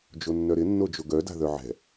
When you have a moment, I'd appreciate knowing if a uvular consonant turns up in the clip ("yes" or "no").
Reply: no